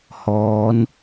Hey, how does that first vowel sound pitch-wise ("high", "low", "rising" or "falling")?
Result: rising